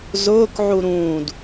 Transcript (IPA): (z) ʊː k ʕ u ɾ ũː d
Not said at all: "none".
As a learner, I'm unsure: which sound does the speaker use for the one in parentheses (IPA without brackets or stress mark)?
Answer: z